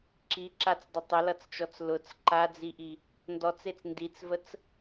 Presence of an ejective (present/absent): absent